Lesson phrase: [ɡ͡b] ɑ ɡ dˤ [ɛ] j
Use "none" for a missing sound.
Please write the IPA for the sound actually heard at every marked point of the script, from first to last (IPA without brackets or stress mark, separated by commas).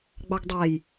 ɡ͡b, ɛ